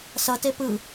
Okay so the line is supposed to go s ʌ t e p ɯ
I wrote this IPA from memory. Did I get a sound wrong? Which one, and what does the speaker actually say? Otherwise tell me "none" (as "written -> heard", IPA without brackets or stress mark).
none